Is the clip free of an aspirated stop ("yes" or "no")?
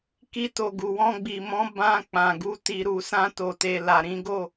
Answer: yes